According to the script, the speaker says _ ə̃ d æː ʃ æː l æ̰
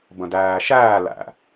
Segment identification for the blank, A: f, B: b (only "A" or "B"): B